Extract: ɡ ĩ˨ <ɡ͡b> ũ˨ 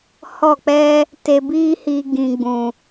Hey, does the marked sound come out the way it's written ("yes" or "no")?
yes